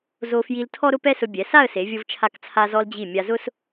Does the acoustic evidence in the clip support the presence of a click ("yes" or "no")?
no